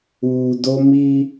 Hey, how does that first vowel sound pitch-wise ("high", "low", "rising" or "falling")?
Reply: low